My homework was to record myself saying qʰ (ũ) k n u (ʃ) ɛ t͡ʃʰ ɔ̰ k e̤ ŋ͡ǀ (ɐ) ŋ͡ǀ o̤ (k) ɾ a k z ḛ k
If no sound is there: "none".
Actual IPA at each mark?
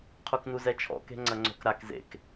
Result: u, z, ɐ, k

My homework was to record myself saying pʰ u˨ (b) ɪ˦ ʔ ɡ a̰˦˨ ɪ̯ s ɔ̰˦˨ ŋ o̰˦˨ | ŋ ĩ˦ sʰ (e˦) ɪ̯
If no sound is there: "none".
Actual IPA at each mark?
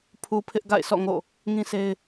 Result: pʰ, e˦

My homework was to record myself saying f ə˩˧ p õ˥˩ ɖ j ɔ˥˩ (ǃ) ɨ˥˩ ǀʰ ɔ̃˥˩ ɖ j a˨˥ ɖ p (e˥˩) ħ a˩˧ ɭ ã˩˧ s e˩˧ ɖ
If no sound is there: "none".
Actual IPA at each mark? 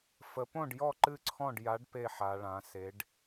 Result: ǃ, e˥˩

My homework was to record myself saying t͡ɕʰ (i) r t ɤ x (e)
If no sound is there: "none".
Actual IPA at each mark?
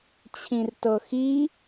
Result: ĩ, i

